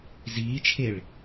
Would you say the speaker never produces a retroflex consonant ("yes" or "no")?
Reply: no